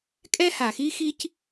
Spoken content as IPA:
kʼ ɛ˦ h a˨ x i˦ x i˦ c

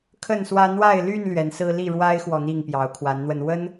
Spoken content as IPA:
kʰ ə˥˨ n s w ä˦ n̪ w a˥˨ ɪ̯ l y˥˨ n l ɥ ɛ˨˦ n s ɹ̩˦ l i˥˨ ɻ w a˦ ɪ̯ x w ɔ˨ n̪ i˥˨ ŋ p j ɑ˨˦ ʊ̯ kʰ w a˨˦ n n̪ w ə˧ n w ə˦ n

